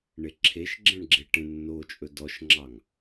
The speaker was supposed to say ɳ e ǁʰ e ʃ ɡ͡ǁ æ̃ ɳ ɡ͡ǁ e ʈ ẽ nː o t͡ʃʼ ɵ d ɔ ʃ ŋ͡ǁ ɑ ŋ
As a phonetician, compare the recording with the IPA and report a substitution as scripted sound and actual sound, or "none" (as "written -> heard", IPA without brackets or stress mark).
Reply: æ̃ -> ɛ̃